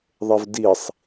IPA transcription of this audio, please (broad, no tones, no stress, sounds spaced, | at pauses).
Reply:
ðˤ e v d i sˤ